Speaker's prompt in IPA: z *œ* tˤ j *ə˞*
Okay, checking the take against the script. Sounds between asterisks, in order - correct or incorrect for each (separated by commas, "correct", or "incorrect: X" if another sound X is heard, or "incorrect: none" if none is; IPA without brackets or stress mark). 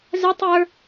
correct, correct